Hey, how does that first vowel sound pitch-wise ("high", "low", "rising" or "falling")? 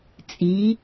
rising